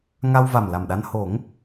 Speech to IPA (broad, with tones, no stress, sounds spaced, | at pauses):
ŋ a˧ w v a˨˩ m l a˨˩ m ɗ a˧ n h o˨˩˦ ŋ